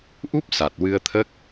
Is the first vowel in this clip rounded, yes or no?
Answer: yes